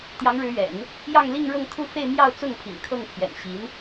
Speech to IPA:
t̪ j ɑ˧˥ ŋ ɻ ɻ̩˧˥ ɥ ɛ̰˨˩˦ n | j ɑ˥˧ ŋ l i˥˧ ŋ ɻ ɤ˥˧ ŋ t̪ʰ u˥˧ f e˥˧ ɪ̯ m j ɑ˥˧ ʊ̯ t͡s ʊ˥˩ ŋ pʰ ḭ˨˩ ŋ kʰ ɤ˥˩ ŋ pʰ j ɛ̰˨˩ n ɕ i˧˥ n

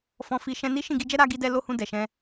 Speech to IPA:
f ɔ̃˧ f i˧ ʃ ɛ̃˧ n i˦ ʃ ĩ˦˨ ɡ i˧ d͡ʒ ɛ˦ ɾ a˧ ɡ i˧ d ɛ˧ l o˧ h ũ˧ d ɛ˨ ʃ ɛ̃˧

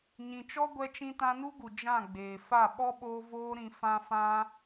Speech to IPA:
ɲ ĩ˧ t͡ʃ ɔ˦ ɡʷ ɛ˧ t͡ʃ ĩ˧ t ã˧ n u˦ ɡ u˨ d͡ʒ ã˦˨ ɡ͡b eː˨ f a˦˨ ɓ ɔ˦ ɓ oː˧ v oː˧ ɾ ĩ˨ f ã˧ f ã˧

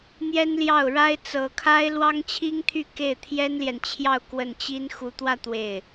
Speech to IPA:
n̪ j ɛ˥ n l j ɑ˥˩ ʊ̯ ɻ a˥ ɪ̯ t͡s ɤ˧˥ kʰ a˥ ɪ̯ l w ɑ˥ ŋ t͡ɕʰ i˥ ŋ t̪ʰ y˥˧ k e˥˩ ɪ̯ t̪ʰ j ɛ˥ n l j ɛ˨ n t͡ɕʰ j ɑ˥˧ ʊ̯ k w ə˥˩ n t͡ɕ i˥ n x u˧˥ t̪ w ä˥˧ t̪ w e˥˩ ɪ̯

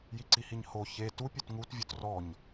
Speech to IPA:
j i ǀ i h i ɲ h o ç e t u pʲ u t ŋ u t vʲ u t r ɔ ɲ

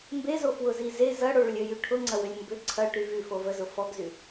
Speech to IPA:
m b e z o f w ʊ z i z e z ɐ ɽ o ɭ ʏ lʲ ø j y ʈʰ ʊ ŋ͡ǀ ɐ w ʏ lʲ m b ʏ ǀʰ ɐ ʈ y v y f o v ə z ʊ f ɔ ɡ z y

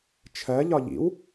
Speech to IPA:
t͡ʃʰ ɜ ʎ ɒ ʎ ḭ w

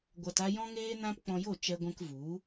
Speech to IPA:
ɡʷ a˧ t a˦ j ɔ̃˦ ŋ eː˦ n ã˦ p k͡p ɔ̃˧ j o˦˨ t͡ʃ ɛ˧ ɡʷ ɛ̃˧ k v u˨˦

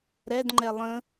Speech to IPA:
ɾ ɛ d ŋ͡ǃ ɛ lˠ ə̃

